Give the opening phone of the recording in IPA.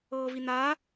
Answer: ɤː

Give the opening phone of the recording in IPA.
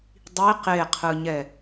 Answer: dˤ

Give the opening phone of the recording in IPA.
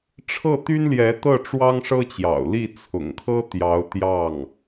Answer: ʈ͡ʂʰ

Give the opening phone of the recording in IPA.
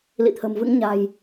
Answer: l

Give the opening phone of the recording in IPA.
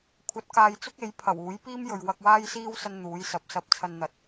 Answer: kʷʰ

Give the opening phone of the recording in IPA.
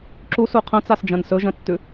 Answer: ǁ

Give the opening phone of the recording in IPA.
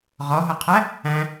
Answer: ʁ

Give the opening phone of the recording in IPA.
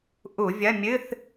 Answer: ʔ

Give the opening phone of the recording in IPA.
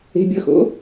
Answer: e̤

